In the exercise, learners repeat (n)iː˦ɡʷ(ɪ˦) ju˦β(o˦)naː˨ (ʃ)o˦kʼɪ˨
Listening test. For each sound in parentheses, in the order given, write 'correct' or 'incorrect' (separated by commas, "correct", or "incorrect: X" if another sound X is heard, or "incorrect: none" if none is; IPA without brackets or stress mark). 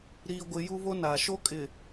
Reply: incorrect: ɾ, correct, correct, correct